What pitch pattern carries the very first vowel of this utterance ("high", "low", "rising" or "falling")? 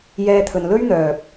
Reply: high